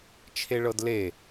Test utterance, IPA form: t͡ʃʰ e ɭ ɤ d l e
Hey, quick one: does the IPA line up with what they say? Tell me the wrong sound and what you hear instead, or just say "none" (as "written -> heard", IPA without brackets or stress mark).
none